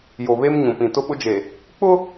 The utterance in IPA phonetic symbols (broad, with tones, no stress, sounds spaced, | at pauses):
j o˨ β e˦ m ɲ ũ˨ p ĩ˨ t ʊ˦ ɓ ʊ˦ d͡ʒ e˨ | k͡p ʊ˦